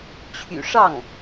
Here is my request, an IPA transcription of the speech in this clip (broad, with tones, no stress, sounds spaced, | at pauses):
t͡ɕʰ y̰˨˩ ʂ ɑ˥˩ ŋ